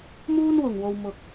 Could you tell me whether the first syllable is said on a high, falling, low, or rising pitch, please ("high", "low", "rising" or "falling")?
high